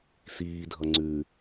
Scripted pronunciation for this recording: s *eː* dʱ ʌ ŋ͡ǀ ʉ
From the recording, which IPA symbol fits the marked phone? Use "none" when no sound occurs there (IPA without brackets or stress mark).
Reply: iː